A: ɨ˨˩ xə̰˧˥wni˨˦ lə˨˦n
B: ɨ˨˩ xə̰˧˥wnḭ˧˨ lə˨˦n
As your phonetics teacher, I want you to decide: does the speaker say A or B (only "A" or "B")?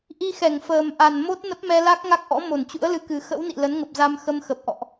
B